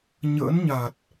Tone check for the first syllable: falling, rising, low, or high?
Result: rising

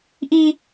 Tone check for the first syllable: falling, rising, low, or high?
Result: low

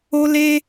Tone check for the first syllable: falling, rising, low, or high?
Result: high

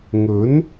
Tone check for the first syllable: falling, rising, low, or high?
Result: rising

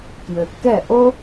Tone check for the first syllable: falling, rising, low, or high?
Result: low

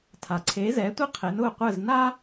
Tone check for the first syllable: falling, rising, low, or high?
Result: low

